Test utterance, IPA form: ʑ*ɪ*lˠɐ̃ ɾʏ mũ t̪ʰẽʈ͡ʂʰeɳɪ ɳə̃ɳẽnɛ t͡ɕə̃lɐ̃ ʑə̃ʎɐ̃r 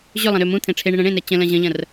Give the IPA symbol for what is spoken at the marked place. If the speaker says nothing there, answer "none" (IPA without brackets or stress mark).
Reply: ʏ